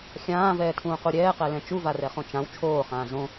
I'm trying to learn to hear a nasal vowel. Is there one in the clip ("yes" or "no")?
yes